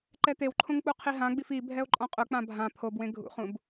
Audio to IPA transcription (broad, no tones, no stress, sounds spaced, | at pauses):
ǃ ɛ t̪ e w ǃʰ õ ŋ k͡p u qʰ i ɦ ã ɡ͡b i f i bʱ ɛ o̯ ǃʼ ɔ̃ qʼ ʊ k͡p ã bʱ ã pʰ o b w ẽ ɡʱ ṵ χ ũ b